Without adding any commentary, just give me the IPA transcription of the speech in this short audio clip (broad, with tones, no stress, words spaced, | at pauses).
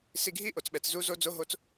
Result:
si˧ɡʱi˦ʔo˨t͡sɓɛ˨t͡s zu˦ zo˦d͡zo˦ɦo˦t͡s